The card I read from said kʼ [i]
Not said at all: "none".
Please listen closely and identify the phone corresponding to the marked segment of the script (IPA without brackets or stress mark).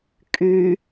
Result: y